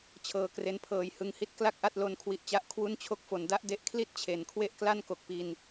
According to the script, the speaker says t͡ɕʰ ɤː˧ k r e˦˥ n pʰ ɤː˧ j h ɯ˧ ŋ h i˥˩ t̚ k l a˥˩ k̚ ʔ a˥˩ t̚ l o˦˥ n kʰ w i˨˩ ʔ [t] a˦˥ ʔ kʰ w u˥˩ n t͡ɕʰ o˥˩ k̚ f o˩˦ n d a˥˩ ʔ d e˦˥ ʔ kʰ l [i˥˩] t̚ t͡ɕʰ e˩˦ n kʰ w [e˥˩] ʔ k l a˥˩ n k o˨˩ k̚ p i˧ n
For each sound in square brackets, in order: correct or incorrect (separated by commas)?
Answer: incorrect, correct, correct